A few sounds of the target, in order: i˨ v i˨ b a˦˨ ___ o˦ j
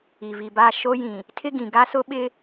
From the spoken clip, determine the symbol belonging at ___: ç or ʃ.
ʃ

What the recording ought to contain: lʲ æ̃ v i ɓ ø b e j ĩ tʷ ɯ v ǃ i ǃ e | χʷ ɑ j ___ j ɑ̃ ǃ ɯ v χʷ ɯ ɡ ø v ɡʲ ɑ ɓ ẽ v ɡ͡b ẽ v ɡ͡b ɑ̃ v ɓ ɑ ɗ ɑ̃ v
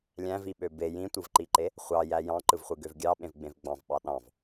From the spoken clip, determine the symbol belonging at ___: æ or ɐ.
æ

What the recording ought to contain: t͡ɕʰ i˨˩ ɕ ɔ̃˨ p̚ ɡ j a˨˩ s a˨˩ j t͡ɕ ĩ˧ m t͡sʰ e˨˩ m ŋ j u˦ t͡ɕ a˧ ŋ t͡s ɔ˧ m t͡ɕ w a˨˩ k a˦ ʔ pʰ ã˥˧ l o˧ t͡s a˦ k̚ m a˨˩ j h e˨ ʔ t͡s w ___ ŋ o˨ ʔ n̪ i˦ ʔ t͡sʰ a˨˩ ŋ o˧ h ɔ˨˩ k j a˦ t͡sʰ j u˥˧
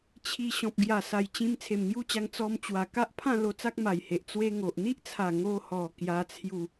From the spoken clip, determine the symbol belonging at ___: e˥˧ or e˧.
e˧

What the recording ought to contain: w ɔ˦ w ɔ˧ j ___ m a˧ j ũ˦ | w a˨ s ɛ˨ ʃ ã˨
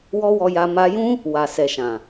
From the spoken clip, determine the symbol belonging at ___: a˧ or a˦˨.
a˧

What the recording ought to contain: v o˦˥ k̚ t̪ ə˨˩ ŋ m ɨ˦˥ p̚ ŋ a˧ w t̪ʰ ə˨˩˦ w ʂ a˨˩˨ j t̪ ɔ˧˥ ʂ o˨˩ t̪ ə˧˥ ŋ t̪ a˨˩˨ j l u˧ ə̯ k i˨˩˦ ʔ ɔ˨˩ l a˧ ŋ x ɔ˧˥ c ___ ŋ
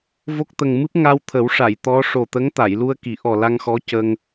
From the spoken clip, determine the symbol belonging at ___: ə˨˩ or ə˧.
ə˧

